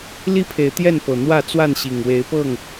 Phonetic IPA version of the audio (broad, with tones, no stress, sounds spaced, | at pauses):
l i˥˨ pʰ e˨˦ ɪ̯ t̪ j ɛ˥˨ n p ɤ˨˩ n̪ w ä˥˨ t͡s w a˥˨ n ɕ i˨˩ ŋ w e˨˦ ɪ̯ p ɤ˥˨ ŋ